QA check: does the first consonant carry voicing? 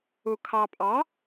no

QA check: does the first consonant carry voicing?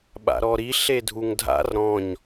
yes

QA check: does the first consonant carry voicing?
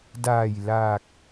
yes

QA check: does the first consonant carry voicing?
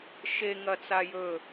no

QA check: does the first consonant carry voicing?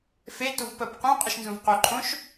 no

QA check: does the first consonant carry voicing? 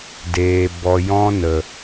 yes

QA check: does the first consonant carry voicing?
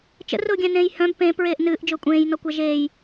no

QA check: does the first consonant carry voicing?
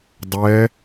yes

